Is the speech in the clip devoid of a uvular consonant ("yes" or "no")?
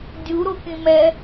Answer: yes